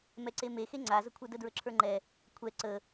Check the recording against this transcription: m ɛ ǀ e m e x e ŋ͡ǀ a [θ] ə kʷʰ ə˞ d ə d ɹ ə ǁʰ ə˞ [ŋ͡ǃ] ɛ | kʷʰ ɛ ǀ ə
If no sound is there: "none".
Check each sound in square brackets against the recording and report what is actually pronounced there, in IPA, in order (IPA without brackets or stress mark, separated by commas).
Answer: z, ŋ͡ǃ